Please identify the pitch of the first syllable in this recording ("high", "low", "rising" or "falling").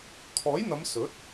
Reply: rising